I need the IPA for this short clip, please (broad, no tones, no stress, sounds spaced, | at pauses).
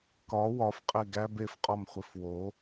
k ɒ w ɒ f qʼ e ɡ æ b e f qʼ ɒ m χʷ i f w o